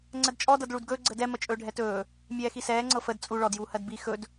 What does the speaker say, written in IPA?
ŋ͡ǀ ə d t͡ʃʼ ɔ d ɤ d ɭ u d ɡ ɵː ɡ͡ǀ ə d ɛ m ə t͡ʃʼ ɵː ɖʱ ɛ t ɵː | mʲ ɛː x i s ɛː ŋ͡ǀ ɤ f ə d t͡sʼ u ɭ ɔ d j uː h ɜ d b i x ɵ d

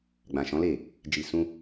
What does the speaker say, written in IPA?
ɡ͡b ã˨ ʃ ɔ̃˨˦ l e˦˨ | d͡ʒ i˨ s ũ˧

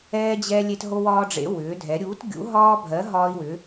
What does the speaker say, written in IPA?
ɛː˥ d͡ʑ ɛ˥ lʲ e˥ t ɦ o˥ w ɒː˥ ɖ͡ʐ ḛ˧˥ w ʏː˧˥ dʱ ɛ˧˥ ɾʲ uː˧˥ t ɡʲ ṵ˧˥ ɦ ɒː˥ bʱ ɜ˧˥ ɦ ɒː˥ i̯ w ʏ˧˥

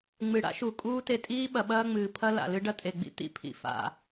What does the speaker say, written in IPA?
ŋ͡m ɨ˨ ɽ a̰˦ ʃ u˨ kʼ uː˦ t e˧ tʼ iː˦ ɓ ɐ˨ ɓ ɐː˧ ŋ͡m ɨː˨ pʰ ɐ˧ l a̰˨ l ɨ˧ ɖ ɐ˦ tʼ e˨ ɡ͡b ḭ˧ t ḭ˧ pʰ ḭ˨ f a̰˨

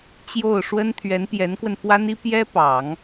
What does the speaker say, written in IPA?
t͡ɕ j o˥˩ ʊ̯ ʂ w ə˥ n t̪ʰ ɥ ɛ˧˥ n p j ɛ˧˥ n k w ə˧ n f w a˥ n i˥ p j ɛ˥ p ɑ˨˩˦ ŋ

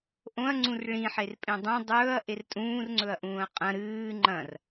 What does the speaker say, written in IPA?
ʔ õ ɐ̯ ŋ͡ǀ ũ r ɭ ĩ ħ e r pʼ ẽ dˤ õ dˤ ɵː ɐ̯ ʔ e r tʼ ũː r ŋ͡ǀ ɵ ɐ̯ ʔ ũː ɐ̯ qʼ ɐ̃ ɾ ɨː ŋ͡ǃ ɐ̃ r

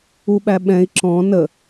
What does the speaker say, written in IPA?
u ɓ æ ɓ ɛ̃ i̯ ǁ ɔ̃ n ə

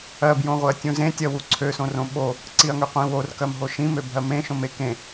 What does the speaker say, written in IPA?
ɜ b j õ ʁʷ e ɐ̯ tʲ ũ z ẽ tʲ ɜ w u ǀʰ ø s õ r õ ɓ o | ǀ i ɐ̯ ŋ ø qʷ ĩ w o r k ɜ m ɦ o ʃ ĩ m ø bʱ ɜ m ẽ ʃ õ m e k ẽ

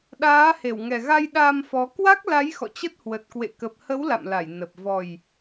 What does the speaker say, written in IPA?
ɗ aː˨˦ h e˧˩ w ŋ ɛ˨˩ ɣ a˧ j ɗ a˧ m f ɔ˨˦ k w a˦˥ k̚ l a˨˦ j x ɔ̰˧˨ t͡ɕ ə˦˥ t̚ h w ə˨˩ t̚ k w ḛ˧˨ k ə˨˩ p̚ h ə˨˦ w l a̰˧˨ m l a˧˩ j n ə˨˩ p̚ v ɔ˨˩ j

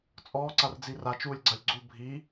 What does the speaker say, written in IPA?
t͡sʼ ɔː ǀ a r d͡z i r a t͡ʃ uː lʲ ɡ͡ǀ a lʲ ɡ͡ǀ u bʱ i

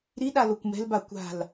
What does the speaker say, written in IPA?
ɾ i ɗ a l o kʷ m ɛ̤ l b a kʷ a̤ l

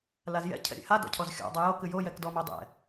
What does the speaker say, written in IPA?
l a z j ɛ̰ cʰ ɛ̰ ɾʲ ɛ̰ h a d ɔ̰ cʰ ɔ z xʲ ɔ̰ dˤ a j o k ɨ j o j ɛ k d ɔ m o dˤ ɛ̰

